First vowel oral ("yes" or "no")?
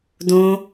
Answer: no